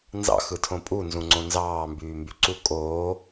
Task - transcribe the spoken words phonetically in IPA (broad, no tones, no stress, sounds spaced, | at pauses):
n z ɑ̰ x ɯ tʰ õ pʼ u n z ũ ŋ͡ǀ õ n z ɑː m b yː m b y ǀ u kʼ oː